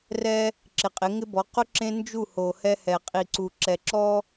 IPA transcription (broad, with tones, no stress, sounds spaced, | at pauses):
r ɛ˦ | ǁ ɪ˨ qʼ ɪ˨˦ ŋ ɪ˦ b ɔ˨˦ q ʊ˦ ǁ ẽ˦ n d͡ʒ u˦˨ h o˨ h ɛ˦ h ɛ˨ qʼ i˨ ǀ u˨ ǁ ɛ˨ ǁ ɔ˦